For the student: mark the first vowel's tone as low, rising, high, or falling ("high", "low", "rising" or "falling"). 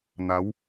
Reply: rising